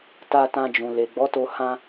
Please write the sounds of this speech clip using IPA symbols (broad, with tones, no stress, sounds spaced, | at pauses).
t a˧ t ã˧ d͡ʒ ũ˨ l e˨ ɡ͡b ɔ˨˦ t o˧ h ã˧